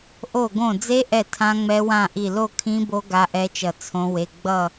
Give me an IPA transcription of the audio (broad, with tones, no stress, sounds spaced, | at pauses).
ʔ o˧˩ ɡ õ˧˩ d͡z e˦˥ ʔ ɛ˧˩ tʰ ã˦˥ ŋ͡m ɛ˦˥ w ã˥˧ ʔ i˧˩ l o˥˧ kʰ ĩ˦˥ b o˦˥ ɡ a˦˥ ʔ ɛ˦˥ t͡ʃ ʌ˧˩ t͡sʰ õ˦˥ w e˧˥˧ ɡ͡b ʌ˥˧